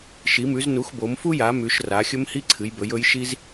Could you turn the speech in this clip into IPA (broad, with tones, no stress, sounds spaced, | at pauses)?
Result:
ʃ i˩˧ m ʉ˩˧ z n u˩˧ x b o˩˧ m f u˦ j a˩˧ m ʉ˩˧ ʃ r a˩˧ xʲ ɵ˦ m h i˦ ǀʰ ɨ˩˧ j b ɵ˩˧ j ɵ˩˧ j ʃ i˦ z